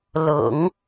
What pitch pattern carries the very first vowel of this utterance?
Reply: low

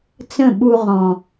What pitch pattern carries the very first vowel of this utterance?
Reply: falling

